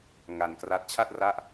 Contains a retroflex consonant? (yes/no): no